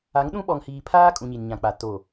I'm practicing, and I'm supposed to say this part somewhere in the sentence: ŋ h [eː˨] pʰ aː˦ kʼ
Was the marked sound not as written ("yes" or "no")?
yes